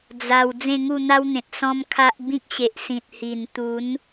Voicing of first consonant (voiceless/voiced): voiced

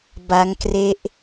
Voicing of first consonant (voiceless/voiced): voiced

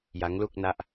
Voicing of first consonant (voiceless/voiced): voiced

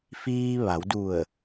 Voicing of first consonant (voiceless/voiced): voiceless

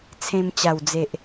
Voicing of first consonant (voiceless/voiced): voiceless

